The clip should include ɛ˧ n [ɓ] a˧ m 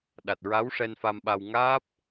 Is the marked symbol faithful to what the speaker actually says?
no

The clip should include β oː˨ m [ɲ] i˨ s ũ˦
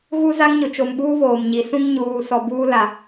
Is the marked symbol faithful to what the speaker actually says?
yes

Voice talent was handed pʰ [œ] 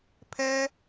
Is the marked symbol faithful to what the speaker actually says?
no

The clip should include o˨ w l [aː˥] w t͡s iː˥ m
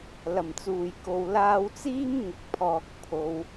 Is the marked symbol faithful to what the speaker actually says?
no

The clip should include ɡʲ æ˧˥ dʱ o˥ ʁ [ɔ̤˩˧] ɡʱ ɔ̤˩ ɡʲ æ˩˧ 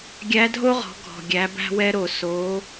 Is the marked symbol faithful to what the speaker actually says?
yes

